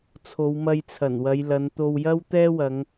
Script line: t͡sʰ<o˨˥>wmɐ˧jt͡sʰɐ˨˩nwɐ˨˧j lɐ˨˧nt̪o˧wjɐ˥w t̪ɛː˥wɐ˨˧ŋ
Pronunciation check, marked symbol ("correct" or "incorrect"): incorrect